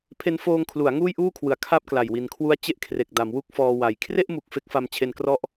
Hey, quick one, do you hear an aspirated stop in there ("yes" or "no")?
yes